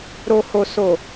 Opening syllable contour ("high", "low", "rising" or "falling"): low